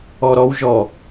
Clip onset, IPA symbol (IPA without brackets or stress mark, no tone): ɔ